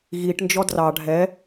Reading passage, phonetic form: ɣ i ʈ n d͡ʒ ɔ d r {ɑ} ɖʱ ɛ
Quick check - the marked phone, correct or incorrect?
correct